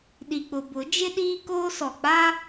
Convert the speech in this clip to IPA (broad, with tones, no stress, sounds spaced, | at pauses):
ɗ i˨ k͡p ʊ˨ b ʊ˨˦ d͡ʒ ɪ˦ ɗ iː˦ k oː˦ s ɔ˨ k͡p a˦